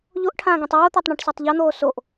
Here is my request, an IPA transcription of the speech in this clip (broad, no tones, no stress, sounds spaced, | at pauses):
ʎ o ʔ ʈʰ ãː ɡ ẽ tˤ oː t̪ a tˤ ɳ ẽ ʈ s e tˤ ʎ ʌ n̪ oː s o ʔ